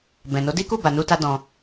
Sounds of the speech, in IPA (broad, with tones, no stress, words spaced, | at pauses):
bɛ̃˨no˨˦di˦ku˦˨ ba˧nu˦ta˦ dɔ̃˧